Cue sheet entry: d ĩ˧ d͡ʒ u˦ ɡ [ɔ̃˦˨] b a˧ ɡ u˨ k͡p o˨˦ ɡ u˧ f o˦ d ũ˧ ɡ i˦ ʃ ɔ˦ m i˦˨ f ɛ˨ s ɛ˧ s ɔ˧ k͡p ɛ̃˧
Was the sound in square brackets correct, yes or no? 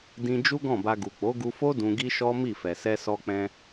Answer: yes